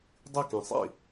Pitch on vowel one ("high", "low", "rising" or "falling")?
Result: falling